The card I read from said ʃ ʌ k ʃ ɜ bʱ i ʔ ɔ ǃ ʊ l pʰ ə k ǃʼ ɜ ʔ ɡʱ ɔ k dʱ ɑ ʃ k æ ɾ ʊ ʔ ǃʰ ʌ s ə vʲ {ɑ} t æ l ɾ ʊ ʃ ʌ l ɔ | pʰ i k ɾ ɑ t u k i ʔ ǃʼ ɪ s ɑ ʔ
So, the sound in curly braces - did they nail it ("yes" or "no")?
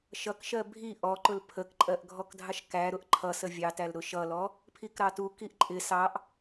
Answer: yes